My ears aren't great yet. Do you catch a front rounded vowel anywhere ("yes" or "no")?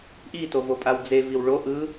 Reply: no